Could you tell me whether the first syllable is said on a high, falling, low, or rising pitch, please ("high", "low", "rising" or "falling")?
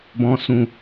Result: low